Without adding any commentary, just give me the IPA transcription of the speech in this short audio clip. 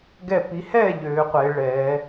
ɡɛ˥˧pi˦˥ hɛ˥˧ ʎøː˦˥qʷe˦˥ ɭɛː˦˥

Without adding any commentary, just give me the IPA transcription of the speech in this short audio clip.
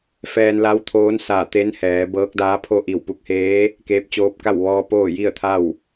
fɛː˧nla˧˥wt̪ʰoː˧˥n sa˧˩ t̪e˧˥nhɛː˩˧ bɤː˧˥k̚daː˧˥pʰo˥˨ ʔi˧˩wpu˧k̚heː˧˥ | keː˧˥p̚t͡ɕoː˧˥p̚ ka˥˨w ʋɔː˧ poː˥˨ji˥˨ə̯t̪ʰa˥˨w

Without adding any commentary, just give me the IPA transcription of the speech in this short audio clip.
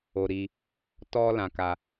o˧ɾi˧ | tɔ˦lã˧ka˧

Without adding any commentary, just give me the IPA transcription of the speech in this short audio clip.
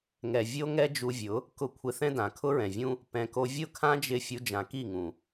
ŋɛ˨ vʲo˦ ŋɛ˦d͡ʒu˧vʲʊ˨˦ | kʊ˧ kʷʰɪ˧θɛ̃˦dã˨ kʰʊ˦ɹɛ̃˨vʲũ˦ | pɛ̃˨ko˧ vʲʊ˦˨kʰã˦ d͡ʒɪ˦˨ fʲu˧d͡ʒã˨ ki˦˨ŋũ˨

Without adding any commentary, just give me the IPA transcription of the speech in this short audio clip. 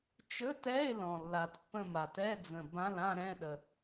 t͡ʃɵ˧˥˧tɛ˧˥˧ɪ̯ lɔ̃˨˩lːa˨˩tpːə̃˥˧ma˨˩t ɛ˧˥˧d͡zə̃˨˩ bã˧˥˧lã˥˧ɾɛ̃˧˥˧ɗə˨˩

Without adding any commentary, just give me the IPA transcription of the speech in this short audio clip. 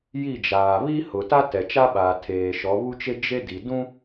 ji˦˨d͡ʒaː˨ βi˦hʊ˨ ta˦ tɛ˨t͡ʃa˦ɓaː˨ tʰeː˨ʃɔ˨˦βu˦t͡ʃe˦ d͡ʒe˦di˨ dũ˦

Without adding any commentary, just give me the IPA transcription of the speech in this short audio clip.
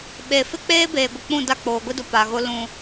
ɓe˨fɪ˦k͡peː˦ beː˨ɡʷɪ˨k͡pũ˦˨ da˦˨k͡poː˨ɡʷi˦dʊ˨ pa˨ɣʊ˦ lũ˦

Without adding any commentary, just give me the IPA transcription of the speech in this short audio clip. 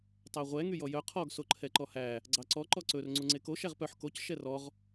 tˤæʁʷɛ ŋyjɔjœ qʰɔɡ soǃʰɛǃɔhæ | ɡ͡ǀɑǀɔ ǃɔǀɵr ŋ͡ǀuŋ͡ǀeko ʃæʁpœħ koc ʃɛrɔʁ

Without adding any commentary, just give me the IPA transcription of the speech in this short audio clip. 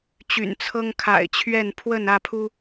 t͡ɕy̰˨˩nt͡sʰɤ˦ŋkʰa̰˨˩ɪ̯t͡ɕʰɥɛ˥˨n pʰwə˥˨n ä˥˨pʰu˦

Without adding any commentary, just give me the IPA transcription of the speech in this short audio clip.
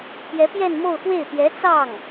pjɛ˧˥pjɛ˥˧n mo˥˧ʊ̯xwe˥˩ɪ̯ pjɛ˧˥t͡sɑ˥˩ŋ

